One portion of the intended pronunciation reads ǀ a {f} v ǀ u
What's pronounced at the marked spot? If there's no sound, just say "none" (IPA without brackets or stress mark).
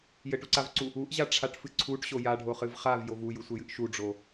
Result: none